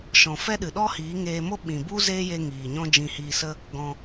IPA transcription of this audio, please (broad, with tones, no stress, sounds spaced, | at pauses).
ʃ ɔ̃˨ f ɛ˦ ɗ ɨ˨ ɗ ɔ˦ h iː˨˦ ŋ eː˧ m o˦ ɓ ĩ˨ b u˦ z eː˦ j e˧ ŋ iː˨ ɲ ɔ̃˦ d͡ʒ ĩ˧ h iː˧ s ə˦ | ɡ ɔ̃˧